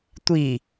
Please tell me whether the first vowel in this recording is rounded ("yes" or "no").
no